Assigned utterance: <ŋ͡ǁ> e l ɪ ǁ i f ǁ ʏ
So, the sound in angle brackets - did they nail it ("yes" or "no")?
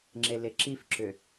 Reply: yes